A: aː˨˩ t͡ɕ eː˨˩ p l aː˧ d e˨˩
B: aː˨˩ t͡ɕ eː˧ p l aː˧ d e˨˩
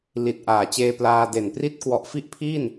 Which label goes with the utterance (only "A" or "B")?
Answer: B